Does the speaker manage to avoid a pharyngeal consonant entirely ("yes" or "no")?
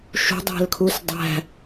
yes